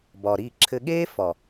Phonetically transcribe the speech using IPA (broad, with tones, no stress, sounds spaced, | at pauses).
b ɒː˨ ɾ iː˦˨ ǁʰ ɘ˦ ɠ eː˦ f ɒ˨